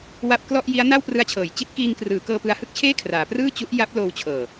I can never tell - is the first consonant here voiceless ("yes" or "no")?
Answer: no